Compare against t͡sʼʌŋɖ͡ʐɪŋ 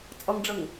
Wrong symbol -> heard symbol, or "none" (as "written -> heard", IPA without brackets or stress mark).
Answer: ɪ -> ə